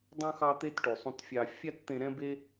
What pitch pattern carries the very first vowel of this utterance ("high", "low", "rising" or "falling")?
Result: high